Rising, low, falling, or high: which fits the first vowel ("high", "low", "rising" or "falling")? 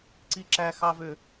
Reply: high